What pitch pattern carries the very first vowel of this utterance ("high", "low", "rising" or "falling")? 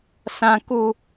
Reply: high